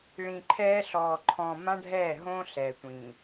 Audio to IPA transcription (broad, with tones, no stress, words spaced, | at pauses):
ɭĩ˨ǃʰɛː˦ɬɔː˨ ǃʰɔ̃˨ mã˦ɖʱɛː˦˨ ɦõ˦ɬɛ˨tʷĩ˨